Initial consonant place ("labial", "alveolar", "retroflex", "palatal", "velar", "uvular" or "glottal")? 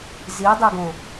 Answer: alveolar